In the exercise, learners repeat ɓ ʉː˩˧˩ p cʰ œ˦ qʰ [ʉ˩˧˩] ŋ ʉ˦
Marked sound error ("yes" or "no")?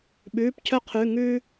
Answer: no